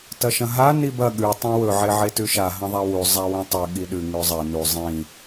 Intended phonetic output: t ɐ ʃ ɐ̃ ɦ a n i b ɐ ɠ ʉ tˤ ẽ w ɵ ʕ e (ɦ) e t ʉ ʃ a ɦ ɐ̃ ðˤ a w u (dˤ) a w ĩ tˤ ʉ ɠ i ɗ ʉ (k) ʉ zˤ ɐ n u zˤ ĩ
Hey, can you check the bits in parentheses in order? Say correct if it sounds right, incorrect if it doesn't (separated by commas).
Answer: incorrect, incorrect, incorrect